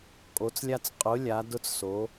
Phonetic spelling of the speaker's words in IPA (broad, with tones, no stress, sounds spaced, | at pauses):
kʼ o˨˦ t͡s lʲ a˦ t͡s qʼ ʊ˨˦ lʲ a˨˦ d ʊ˦ t͡s s o˨˦